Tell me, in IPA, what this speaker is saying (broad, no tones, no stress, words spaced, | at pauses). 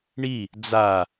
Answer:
ɳi | d͡za